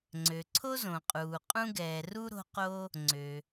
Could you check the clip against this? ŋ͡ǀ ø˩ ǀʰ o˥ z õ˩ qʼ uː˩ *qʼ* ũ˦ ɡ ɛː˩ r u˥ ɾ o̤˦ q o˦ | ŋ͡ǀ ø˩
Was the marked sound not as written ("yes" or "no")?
no